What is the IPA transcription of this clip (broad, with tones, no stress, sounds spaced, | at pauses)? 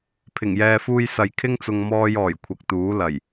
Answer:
pʰ ɪ˨˩ ŋ j ɛː˨ f uː˧ j s ɐ˨ j kʰ ɪ˥ ŋ t͡s ʊ˧ ŋ m ɔː˧ j ɔː˨˩ j kʷʰ ɐ˨ k̚ t̪ uː˨˥ l ɐ˨˩ j